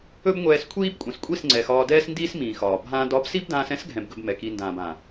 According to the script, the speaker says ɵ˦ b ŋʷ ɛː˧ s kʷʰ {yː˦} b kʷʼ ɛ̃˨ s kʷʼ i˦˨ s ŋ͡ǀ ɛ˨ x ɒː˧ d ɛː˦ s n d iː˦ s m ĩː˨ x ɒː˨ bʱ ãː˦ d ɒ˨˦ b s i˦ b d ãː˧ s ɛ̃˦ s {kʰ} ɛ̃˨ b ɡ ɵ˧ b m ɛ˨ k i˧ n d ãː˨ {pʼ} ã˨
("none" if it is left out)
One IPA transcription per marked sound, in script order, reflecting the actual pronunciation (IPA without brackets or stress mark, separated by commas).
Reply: iː˦, ɡʱ, b